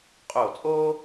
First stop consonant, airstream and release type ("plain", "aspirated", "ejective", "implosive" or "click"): ejective